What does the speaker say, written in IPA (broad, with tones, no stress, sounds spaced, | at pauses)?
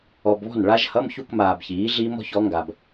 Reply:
ɔ˨ b β ɔ̤˥˩ n ɭ a˦˥ ʒ h ʌ˧˥˧ m ç u˥˧ k m aː˨ b ç iː˩˥ ɮ iː˦˥ m ɔ̤˩˥ ç ɔ˩˥ ŋ ɡ a˨ b